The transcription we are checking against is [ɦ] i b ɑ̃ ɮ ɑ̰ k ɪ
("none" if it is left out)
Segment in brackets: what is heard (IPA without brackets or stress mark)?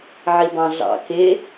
ʕ